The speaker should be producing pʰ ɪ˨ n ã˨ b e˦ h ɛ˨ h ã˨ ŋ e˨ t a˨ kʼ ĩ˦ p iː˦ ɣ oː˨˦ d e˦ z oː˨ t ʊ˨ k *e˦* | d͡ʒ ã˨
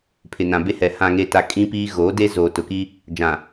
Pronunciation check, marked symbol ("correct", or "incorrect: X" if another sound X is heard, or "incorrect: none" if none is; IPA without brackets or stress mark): incorrect: i˦